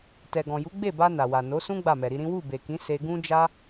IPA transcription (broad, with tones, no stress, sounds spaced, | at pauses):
t ɛ˨ ɡ ɔ̃˨ j u˨˦ ɡ͡b e˦˨ b a˧ n a˨ w a˨ n o˨˦ s ũ˦ ɡ͡b a˦˨ m ɛ˨ ɾ i˧ ɾ ĩ˦ w u˦˨ b e˨ k ĩ˨˦ s e˧ ɡ ũ˦ d͡ʒ a˦